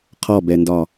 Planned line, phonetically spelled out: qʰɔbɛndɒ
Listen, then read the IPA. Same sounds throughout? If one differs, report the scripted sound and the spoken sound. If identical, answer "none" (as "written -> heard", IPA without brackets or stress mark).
none